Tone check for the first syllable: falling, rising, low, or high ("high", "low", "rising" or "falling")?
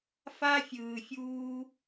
high